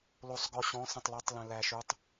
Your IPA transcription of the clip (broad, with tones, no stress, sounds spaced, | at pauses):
l o˨ sˤ ɡ ɔ˨ ɕ ɔ̃˨˦ s ə̃˨ tˤ l ɔ˨˦ tˤ l ə̃˨ l æ˨ ʃ ʉ˨˦ tˤ